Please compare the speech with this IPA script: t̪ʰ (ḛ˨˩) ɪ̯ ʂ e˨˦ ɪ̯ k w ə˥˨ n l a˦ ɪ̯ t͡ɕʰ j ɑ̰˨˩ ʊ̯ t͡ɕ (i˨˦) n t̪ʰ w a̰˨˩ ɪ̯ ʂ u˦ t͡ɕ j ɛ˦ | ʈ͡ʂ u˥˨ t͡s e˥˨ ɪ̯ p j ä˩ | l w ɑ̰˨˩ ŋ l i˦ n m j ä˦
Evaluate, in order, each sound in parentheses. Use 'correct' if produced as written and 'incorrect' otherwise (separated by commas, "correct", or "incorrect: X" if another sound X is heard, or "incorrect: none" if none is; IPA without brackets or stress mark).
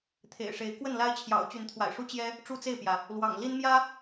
correct, incorrect: y˨˦